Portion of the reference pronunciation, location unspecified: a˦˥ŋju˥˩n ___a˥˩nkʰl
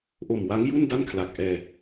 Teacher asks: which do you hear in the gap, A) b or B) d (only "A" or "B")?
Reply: B